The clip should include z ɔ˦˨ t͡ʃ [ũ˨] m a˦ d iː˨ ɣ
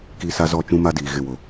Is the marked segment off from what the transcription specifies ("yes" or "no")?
yes